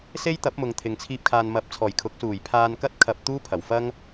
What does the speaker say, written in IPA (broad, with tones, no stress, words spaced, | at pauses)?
se˥jt̪ɐ˨˥p̚ mʊ˨ŋt̪ʰɪ˨ŋt͡sʰiː˧p̚ kʰaː˨nmɐ˨˥p̚t͡sʰɔː˨˩jkʰʊ˨˥k̚ suː˨˩jpʰaː˧nkɐ˥t̚ kʰɐ˧p̚ t̪uː˥pʰɐ˨˩w fɐ˥ŋ